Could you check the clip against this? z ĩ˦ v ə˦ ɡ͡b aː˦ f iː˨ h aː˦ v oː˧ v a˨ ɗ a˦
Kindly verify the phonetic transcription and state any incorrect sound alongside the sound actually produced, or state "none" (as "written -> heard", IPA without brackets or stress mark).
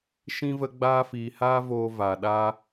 z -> ʃ